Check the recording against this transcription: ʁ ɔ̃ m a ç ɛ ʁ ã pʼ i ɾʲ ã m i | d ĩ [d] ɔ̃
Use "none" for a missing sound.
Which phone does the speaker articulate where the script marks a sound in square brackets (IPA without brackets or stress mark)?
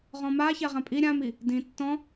tː